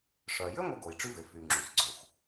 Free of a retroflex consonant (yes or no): no